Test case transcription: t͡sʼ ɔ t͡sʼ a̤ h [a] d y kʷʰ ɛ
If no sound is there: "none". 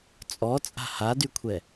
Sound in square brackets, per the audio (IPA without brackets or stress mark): a